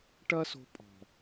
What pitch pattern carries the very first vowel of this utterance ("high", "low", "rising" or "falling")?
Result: high